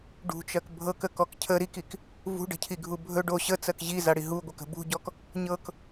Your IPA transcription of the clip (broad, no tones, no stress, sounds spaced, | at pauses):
ɖ ṳ t͡ʃ ɜ k bʱ ɤ k ə k ɔ k cʰ ə ɾ i k i k | v ṳ ɖ ə̤ cʰ i ɡʱ u bʱ ɵ ɖ o ɕ ə t͡s ɜ k ʑ i z a ɽ i ɦ u ɡʷ ə k ə̤ b ṳ ɟ ɔ k | ɲ ɤ k